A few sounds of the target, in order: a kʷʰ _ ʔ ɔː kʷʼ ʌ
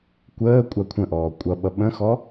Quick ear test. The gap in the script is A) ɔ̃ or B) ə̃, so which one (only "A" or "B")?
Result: B